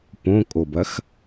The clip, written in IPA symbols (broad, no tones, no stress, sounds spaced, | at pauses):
p õ kʼ o b ɐ x